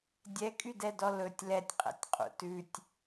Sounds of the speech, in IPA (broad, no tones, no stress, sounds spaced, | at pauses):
dʲ ɛ kʼ y d ɛ d ɔ l ɵ tʲ l ɛ tʲ qʼ ɛ̰ tʲ qʼ ṵ t ʉ tʲ